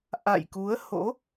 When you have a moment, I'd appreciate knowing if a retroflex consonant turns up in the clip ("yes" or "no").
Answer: no